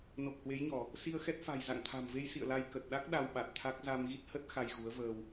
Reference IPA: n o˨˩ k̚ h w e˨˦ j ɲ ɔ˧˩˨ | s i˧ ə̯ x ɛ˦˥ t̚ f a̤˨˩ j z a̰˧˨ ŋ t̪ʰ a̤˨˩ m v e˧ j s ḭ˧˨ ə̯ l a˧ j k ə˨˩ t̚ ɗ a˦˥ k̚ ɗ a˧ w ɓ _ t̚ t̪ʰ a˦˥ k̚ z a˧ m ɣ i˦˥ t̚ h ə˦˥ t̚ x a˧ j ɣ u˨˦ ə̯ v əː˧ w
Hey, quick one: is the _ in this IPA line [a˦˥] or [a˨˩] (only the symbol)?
a˨˩